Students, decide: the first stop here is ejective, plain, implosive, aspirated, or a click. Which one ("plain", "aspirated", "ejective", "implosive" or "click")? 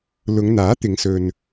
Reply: plain